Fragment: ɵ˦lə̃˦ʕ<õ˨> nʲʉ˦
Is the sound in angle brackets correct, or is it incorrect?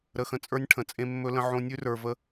incorrect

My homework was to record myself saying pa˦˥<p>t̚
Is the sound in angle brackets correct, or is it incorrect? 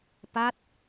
incorrect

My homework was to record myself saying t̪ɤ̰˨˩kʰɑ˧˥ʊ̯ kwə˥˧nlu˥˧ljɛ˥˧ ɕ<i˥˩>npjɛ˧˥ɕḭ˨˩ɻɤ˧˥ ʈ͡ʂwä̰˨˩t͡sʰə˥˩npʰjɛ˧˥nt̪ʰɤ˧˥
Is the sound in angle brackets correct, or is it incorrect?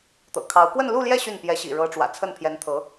incorrect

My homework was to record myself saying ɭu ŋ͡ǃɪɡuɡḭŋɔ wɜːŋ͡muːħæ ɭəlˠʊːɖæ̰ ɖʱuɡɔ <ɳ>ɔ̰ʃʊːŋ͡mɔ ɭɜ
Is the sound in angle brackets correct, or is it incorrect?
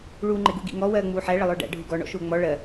correct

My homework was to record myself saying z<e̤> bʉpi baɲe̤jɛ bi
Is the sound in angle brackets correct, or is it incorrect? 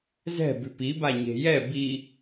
incorrect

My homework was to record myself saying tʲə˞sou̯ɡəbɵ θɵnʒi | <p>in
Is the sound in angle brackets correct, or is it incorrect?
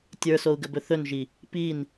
correct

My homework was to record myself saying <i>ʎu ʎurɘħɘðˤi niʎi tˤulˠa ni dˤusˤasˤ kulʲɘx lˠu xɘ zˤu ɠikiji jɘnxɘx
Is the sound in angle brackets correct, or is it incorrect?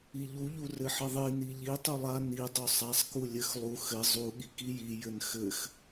correct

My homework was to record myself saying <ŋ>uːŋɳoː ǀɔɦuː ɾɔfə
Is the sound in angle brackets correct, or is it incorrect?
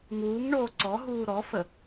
correct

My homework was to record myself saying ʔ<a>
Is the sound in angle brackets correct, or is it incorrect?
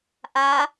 correct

